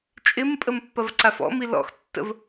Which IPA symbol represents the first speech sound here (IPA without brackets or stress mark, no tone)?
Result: t͡ʃʼ